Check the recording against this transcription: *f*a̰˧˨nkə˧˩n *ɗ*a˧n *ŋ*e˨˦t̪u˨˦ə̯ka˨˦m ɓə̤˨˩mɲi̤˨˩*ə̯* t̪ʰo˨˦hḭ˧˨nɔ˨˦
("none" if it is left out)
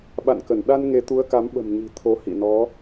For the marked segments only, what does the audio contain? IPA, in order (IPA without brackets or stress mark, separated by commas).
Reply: ɓ, ɗ, ŋ, none